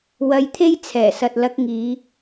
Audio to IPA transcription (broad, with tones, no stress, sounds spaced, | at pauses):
w ɐ˧ j t̪ʰ e˥ j t͡sʰ ɛː˨˩ s ɐ˨ t̚ l ɐ˧ k̚ ŋ iː˨˧